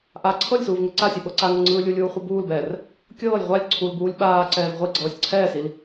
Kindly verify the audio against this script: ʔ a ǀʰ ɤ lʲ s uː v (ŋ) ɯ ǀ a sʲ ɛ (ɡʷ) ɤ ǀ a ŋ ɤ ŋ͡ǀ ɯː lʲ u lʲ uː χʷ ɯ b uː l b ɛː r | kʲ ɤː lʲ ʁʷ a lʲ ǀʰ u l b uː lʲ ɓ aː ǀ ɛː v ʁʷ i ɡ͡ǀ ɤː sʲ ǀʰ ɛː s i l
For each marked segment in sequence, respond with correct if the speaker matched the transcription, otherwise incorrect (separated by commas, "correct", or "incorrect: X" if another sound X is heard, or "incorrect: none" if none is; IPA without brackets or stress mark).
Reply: correct, incorrect: ɓ